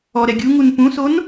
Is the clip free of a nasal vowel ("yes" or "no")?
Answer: no